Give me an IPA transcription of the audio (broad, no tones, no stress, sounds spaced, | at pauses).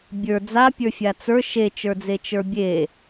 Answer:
bʲ ə˞ d͡z a pʲ ə˞ fʲ a t͡s ə˞ ʃ e t͡ʃ ə˞ d͡z e t͡ʃ ə˞ bʲ e